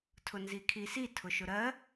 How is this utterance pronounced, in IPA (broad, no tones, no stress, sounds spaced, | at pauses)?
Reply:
tʰ ʊ n z i kʰ i s i tʰ ʊ ʃ ʊ ɾ ɜ